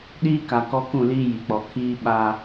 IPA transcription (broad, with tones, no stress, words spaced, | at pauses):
ɗiː˦ka˨ kɔ˦kũ˦˨liː˦ ji˨k͡pɔ˨˦ kʰiː˦ ɓa˦